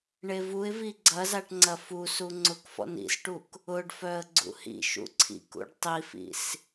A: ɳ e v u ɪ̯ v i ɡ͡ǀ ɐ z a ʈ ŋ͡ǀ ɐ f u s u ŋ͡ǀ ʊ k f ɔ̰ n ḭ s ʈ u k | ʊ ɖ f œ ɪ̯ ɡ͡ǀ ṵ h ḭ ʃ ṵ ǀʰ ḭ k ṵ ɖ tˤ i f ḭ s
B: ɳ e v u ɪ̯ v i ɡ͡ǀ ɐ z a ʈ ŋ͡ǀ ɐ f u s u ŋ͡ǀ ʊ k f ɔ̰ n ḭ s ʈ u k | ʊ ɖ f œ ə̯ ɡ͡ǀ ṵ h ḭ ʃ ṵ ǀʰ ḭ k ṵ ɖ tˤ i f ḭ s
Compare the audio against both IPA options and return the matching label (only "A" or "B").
B